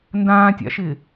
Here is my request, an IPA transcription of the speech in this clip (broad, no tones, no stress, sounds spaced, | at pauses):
n d ãː tʲ a̰ ʃ ɪː